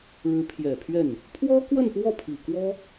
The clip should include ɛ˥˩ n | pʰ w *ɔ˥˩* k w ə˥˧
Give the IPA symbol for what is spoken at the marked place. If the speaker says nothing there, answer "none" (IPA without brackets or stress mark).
ɔ˥